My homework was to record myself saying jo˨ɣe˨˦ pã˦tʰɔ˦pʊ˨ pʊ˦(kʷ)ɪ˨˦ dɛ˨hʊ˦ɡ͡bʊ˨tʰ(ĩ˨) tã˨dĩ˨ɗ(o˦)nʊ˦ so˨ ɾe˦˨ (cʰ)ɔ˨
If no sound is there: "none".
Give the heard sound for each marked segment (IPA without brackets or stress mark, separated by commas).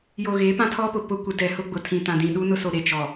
kʷ, ĩ˨, u˦, t͡ʃ